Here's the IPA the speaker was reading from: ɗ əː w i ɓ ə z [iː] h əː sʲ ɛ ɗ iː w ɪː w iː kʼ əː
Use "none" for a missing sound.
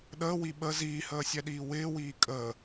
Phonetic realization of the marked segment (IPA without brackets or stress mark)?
iː